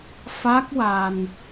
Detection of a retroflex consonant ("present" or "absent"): absent